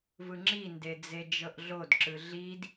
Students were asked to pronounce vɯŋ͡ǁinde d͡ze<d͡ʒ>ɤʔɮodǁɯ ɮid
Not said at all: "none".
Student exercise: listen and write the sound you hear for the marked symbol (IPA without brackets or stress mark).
d͡ʒ